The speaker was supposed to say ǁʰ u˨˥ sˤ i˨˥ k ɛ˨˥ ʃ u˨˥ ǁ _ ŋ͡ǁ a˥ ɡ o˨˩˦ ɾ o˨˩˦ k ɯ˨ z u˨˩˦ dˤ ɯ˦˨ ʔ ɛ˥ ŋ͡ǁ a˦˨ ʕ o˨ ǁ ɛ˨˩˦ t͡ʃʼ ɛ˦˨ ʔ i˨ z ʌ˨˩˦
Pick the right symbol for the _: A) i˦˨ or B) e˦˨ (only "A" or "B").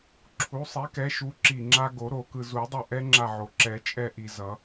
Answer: A